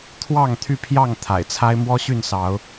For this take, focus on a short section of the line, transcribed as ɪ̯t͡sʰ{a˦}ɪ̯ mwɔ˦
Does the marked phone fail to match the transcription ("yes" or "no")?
no